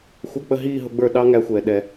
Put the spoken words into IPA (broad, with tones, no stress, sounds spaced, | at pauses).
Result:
xʷ ʌ˧˥˧ k͡p ə˦˨ ɦ iː˦˨ ɦ ʊ˨˦ ɡ͡b ə˞˦˨ ɗ ɑ˦˥ ŋ æ˨˦ xʷ ɛː˩ ɗ ɛ˩